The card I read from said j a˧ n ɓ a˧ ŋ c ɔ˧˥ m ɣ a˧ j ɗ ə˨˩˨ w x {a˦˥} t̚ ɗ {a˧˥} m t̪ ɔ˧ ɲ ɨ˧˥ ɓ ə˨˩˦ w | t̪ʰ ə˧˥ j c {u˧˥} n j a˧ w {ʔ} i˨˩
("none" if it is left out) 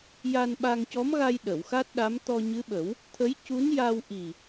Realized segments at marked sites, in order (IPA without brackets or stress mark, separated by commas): a˦˥, a˧˥, u˧˥, ʔ